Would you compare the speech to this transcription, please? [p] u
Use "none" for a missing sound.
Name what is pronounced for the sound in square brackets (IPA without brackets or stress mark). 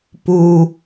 p